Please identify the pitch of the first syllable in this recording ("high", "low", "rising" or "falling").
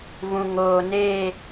low